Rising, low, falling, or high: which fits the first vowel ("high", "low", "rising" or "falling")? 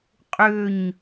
falling